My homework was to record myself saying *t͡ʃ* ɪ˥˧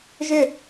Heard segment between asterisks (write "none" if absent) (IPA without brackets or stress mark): ʒ